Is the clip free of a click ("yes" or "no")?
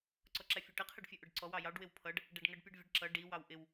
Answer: no